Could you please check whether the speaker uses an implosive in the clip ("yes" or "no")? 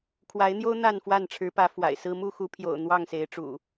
no